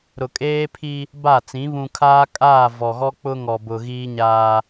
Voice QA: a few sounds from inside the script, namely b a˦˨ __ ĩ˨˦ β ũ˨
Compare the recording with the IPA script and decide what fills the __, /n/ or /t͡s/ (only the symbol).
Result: t͡s